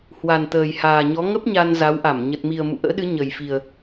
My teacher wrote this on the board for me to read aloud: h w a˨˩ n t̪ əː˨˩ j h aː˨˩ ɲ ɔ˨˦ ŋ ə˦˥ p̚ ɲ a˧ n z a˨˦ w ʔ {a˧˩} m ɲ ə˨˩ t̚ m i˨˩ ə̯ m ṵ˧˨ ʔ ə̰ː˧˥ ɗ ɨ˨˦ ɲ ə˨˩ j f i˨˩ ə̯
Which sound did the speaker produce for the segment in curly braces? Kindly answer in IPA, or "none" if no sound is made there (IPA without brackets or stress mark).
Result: a˧˩